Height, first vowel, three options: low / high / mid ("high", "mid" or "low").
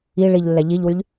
high